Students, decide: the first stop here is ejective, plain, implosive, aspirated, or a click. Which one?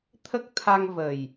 aspirated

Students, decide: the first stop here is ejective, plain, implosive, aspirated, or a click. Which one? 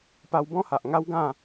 plain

